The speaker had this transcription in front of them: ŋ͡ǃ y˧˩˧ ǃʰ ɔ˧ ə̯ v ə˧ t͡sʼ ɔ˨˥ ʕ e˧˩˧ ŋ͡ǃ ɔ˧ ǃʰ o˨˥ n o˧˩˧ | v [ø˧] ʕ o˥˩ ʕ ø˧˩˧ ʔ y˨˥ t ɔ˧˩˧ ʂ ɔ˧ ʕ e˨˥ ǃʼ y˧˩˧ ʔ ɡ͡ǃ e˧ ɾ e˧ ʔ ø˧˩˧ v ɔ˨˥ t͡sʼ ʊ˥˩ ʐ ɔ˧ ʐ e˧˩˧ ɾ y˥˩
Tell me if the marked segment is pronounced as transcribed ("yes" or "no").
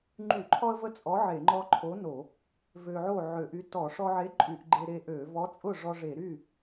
yes